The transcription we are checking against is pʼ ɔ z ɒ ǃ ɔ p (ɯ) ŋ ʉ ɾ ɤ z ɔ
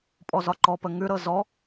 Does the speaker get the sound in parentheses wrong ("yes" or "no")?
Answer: yes